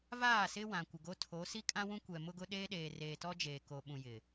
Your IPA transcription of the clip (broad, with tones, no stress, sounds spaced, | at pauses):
v aː˦˨ s ɪ˦ w ã˨ kʷ ɪ˨ ɡ o˦ tʰ o˨˦ s i˦ kʼ ã˦ w ũ˦ kʷ ɛ˨ m ʊ˦ ɡ ʊ˦ ɗ eː˦ ɗ eː˨ r eː˨ t ɔ˦ d͡ʒ eː˨ k o˨ ɓ ũ˨ j ɪ˨